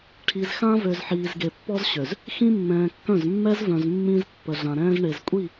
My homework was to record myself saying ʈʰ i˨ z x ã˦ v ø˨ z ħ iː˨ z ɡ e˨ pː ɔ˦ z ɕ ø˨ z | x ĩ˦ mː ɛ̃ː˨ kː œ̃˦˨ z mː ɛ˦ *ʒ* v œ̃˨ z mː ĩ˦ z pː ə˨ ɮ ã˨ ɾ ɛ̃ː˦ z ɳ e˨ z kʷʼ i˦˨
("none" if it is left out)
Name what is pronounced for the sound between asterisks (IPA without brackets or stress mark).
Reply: z